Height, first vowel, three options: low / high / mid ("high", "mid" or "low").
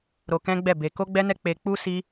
mid